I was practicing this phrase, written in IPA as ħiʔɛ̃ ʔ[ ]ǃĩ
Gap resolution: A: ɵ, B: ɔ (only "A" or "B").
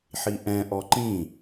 B